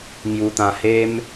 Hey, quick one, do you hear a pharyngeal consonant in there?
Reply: no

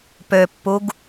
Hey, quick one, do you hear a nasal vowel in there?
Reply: no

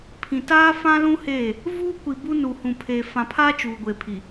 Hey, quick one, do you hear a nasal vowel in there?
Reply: yes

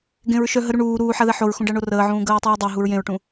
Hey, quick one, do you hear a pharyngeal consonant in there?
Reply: yes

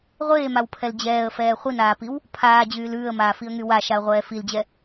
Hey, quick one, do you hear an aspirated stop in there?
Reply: yes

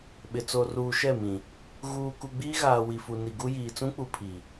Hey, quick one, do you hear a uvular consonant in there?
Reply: no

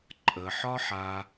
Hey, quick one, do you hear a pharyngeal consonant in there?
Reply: yes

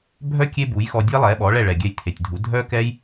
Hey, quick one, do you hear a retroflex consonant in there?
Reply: yes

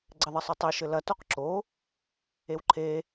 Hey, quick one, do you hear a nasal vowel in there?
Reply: no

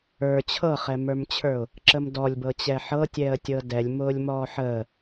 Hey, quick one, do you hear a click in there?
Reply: yes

